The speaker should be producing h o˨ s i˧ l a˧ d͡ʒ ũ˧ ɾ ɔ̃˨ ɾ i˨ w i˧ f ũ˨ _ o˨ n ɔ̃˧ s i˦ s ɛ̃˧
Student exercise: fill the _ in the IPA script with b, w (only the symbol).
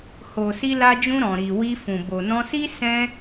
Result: b